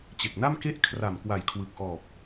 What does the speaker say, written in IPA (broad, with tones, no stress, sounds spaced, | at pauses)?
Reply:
t͡ɕ e˨˩ k̚ n a˥˩ m k e˥˩ ʔ kʰ r a˨˩ m k w a˨˩ j kʰ w ɯ˨˩ k̚ ʔ ɔː˨˩ p̚